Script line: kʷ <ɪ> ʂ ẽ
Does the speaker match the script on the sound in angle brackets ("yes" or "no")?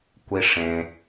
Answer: no